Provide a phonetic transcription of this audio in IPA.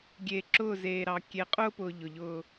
ɡʲ eː˨ ǁ ʊː˦˨ z eː˨ ɾ ɑ˨ kʲ e˨ qʼ ʊː˦ p ʊː˨ ʎ ʊ˨ ʎ ʊː˦

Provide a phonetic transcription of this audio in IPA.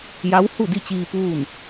j a˧˥ w h u˥˨ d i˥˨ t͡ɕ iː˧ p uː˥˨ n

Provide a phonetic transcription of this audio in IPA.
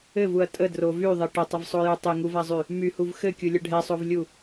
ɘ v u ɐ̯ tʼ ə d r o v y ðˤ e ʈ ə tˤ ə v sˤ o j u tˤ e ŋ u v a zˤ y | m y h u v x ɘ kʲ u lʲ ə ɖʱ ɛ sˤ o v lʲ u

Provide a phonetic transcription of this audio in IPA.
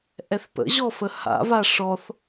ʔ ɛ θ p ə̰ ʑ ɔ f ə h a̰ v a ʂ ɔ θ

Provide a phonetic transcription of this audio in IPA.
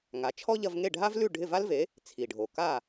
ŋ a˩˥ t͡ʃʰ ɔ˥ ʎ ɐ˧ v ŋ e˥˩ ɖʱ a˥ v l ʉ˥˩ ɖʱ ɪ˥˩ v a˥ l v e˩˥ | t͡sʰ i˩ ɖʱ o˩ k a˥˩

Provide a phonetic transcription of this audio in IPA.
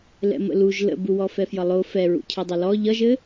l ɛ̰ m ə̰ l u ʒ l ə̰ b u w ɔ f ɛ f j ʌ lˠ o f ɛ ɹ ṵ cʰ ɛ dˤ ʌ l ɔ ʎ ʌ ʒ ɘ

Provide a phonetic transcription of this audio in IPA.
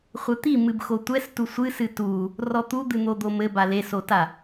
χʷ ɘ t̪ i m ɨ b x o tʷ ɛ s t u sʷ ɨ s ɨ t u | r ɔ t̪ u d̪ ɨ n̪ o d̪ o m ɘ b a l e s o t a

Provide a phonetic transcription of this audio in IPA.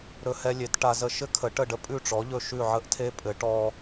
ɾ ɵ˧ h ɛ˧ lʲ e˩˥ t ʈ a˧ z ə˥˩ ʃ ɘ˥ kʰ ə˩˥ ʈ ə˥˩ ɖ ə˥ pʼ ʉ˥˩ ʈ͡ʂ ɔ˩˥ ʎ ɵ˧ ʃ ʉ˥˩ ʕ ə˥ ʔ tʰ e˥ pʼ ɘ˩˥ ʈ ɔ˧

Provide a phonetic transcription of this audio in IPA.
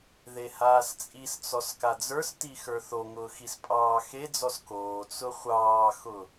ð e h aː s t͡sʼ i s t͡s ɔ s k a d͡z ə˞ s t i x ə˞ θ o ŋ ʊː x i s pʼ ɑː x e d͡z ɔ s k oː t͡s ʊ χʷ ɑː x ʊ

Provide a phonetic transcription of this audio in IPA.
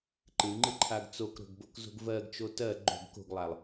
ǃ ɨ ŋ͡ǃ ɨ ǃʰ a ɡ t͡s o k ɾ o̤ ɡ b o k z o̤ ɡ v ɜ ɡ t͡ʃ o t ɜ ɡ͡ǃ o̤ ɡ k o̤ ɡ lˠ a lˠ

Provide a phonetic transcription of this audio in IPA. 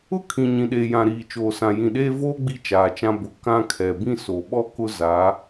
ʊ˦ kʰ ĩ˨ ɲ ĩ˨ ɗ eː˨ j ã˨ ɾ iː˨ t͡ʃ oː˨ s ã˨ j ĩ˨ ɗ eː˦ v oː˦ ɡ͡b i˦ t͡ʃ aː˨ t͡ʃ ã˦ b ʊ˨ k ã˦ kʰ ɛ˨ b ĩ˦˨ s o˨ ɓ ɔ˦ k ʊ˦ z a˨˦

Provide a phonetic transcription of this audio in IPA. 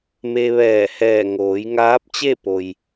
m e˧ ʋ ɛː˧˩ h ɛː˧˩ ŋ oː˩˧ j ŋ aː˧˥ p̚ t͡ɕ e˥˨ p o˩ j

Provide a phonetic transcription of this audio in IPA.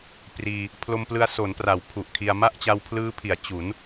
p r iː˧ | pʰ l o˧ m p l ɯ˧ a̯ s o˩˦ n p r a˩˦ w pʰ u˨˩ ʔ kʰ i˧ a̯ m a˥˩ ʔ t͡ɕ a˧ w pʰ l ɯː˦˥ pʰ i˩˦ a̯ t͡ɕ u˩˦ n

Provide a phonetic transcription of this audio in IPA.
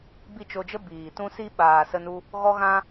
b i˦˨ t͡ʃ o˧ d͡ʒ ə˦ b iː˨ t ũ˧ s i˧ ɓ aː˨ s ə˧ n u˧ | ɣ ɔ˦ ɣ ã˦

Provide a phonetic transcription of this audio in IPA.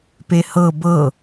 p e h ɤ b ɤ

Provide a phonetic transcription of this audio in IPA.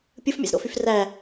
pʲ ɯ f mʲ æ̰ z ɾ o̰ f y f r æ

